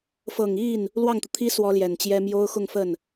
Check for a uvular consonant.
absent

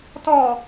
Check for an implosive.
absent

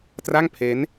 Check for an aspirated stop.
present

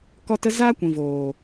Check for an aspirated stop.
absent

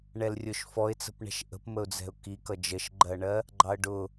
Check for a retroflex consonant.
present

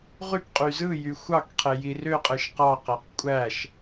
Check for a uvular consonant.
present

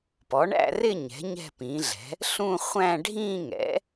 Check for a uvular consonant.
present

